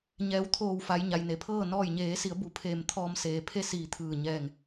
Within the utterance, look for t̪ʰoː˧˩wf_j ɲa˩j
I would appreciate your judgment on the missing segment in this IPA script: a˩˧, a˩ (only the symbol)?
a˩˧